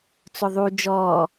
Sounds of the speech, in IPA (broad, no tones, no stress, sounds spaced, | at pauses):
t͡s ʊ ðˤ u d͡ʒ ɔː